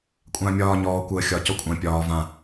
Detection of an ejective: present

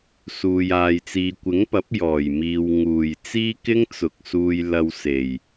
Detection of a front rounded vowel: absent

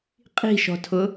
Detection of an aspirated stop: present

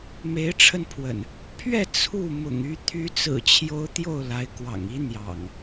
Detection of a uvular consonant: absent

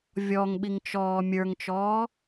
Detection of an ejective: absent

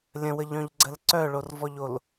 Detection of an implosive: absent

